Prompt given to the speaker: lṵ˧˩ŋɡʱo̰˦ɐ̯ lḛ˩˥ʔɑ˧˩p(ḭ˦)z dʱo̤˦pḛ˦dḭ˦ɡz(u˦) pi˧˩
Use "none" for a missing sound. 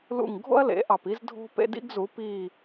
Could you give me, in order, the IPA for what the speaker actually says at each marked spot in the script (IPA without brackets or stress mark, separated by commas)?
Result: i˦, u˩˥